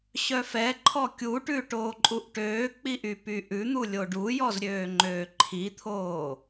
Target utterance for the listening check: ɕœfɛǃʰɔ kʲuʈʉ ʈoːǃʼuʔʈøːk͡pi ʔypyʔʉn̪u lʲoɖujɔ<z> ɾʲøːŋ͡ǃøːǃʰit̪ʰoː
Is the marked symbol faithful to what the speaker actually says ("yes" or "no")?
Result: yes